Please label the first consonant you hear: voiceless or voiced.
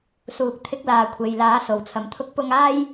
voiceless